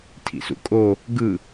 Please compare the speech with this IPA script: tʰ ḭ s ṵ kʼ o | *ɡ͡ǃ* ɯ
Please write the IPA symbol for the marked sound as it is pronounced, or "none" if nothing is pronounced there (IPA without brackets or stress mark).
ɡ